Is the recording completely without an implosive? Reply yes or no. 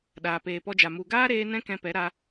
no